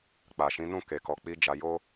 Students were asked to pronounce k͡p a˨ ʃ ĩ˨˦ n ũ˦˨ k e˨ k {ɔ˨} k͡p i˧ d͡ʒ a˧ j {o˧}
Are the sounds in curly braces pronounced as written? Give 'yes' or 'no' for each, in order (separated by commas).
yes, no